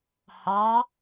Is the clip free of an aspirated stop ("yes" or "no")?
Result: yes